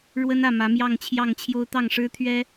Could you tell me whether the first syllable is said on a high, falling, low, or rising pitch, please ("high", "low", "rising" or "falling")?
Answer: high